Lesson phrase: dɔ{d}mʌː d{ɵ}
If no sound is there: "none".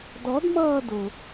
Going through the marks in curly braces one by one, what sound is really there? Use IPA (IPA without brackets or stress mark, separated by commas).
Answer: d, ʊ